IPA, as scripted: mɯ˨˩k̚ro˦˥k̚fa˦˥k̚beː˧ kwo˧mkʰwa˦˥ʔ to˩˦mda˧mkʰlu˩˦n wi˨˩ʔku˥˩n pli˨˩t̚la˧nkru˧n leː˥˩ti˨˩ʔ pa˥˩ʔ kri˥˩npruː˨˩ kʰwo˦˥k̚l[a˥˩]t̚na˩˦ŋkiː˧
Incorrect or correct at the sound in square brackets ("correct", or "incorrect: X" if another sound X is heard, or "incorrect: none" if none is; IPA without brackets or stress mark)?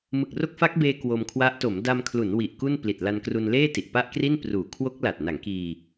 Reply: incorrect: a˨˩